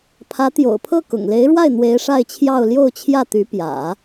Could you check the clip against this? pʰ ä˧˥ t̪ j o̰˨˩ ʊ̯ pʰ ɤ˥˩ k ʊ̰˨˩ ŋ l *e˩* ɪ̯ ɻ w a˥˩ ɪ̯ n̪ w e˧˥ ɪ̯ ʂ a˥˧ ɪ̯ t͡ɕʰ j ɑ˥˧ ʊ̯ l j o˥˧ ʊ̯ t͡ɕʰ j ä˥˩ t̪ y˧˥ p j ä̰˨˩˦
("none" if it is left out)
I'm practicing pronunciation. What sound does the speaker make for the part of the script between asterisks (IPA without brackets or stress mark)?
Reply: e˧˥